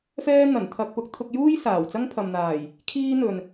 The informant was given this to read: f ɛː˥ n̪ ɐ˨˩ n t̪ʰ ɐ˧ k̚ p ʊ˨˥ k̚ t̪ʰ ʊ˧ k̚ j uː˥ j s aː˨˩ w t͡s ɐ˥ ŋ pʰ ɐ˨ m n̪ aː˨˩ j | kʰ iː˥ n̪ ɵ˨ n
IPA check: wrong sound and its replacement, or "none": none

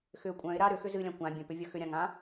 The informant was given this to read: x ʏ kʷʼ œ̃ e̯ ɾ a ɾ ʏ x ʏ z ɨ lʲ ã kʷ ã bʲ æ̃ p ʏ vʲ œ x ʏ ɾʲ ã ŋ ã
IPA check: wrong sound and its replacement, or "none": æ̃ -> œ̃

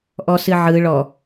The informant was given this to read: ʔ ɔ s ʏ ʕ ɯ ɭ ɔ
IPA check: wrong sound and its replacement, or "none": ʏ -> ɨ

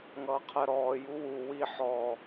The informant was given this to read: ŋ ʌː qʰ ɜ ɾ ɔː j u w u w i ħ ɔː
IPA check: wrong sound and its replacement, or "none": none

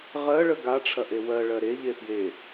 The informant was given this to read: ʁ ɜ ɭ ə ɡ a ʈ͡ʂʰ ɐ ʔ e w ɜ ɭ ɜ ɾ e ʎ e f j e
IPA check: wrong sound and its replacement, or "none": none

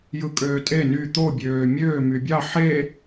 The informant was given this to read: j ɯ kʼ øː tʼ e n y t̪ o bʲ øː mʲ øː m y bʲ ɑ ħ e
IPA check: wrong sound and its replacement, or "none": none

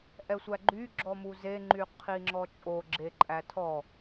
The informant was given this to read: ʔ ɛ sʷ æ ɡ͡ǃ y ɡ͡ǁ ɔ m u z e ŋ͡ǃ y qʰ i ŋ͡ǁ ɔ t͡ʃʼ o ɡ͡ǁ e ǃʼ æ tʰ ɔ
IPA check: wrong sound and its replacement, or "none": none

